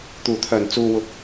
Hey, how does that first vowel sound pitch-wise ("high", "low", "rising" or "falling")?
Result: low